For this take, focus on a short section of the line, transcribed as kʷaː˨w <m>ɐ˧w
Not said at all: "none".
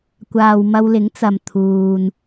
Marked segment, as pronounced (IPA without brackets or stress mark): m